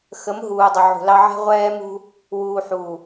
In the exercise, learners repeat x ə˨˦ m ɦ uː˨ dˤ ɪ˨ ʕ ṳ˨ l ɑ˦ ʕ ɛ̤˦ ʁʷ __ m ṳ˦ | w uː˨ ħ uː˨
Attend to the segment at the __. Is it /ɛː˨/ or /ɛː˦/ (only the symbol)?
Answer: ɛː˦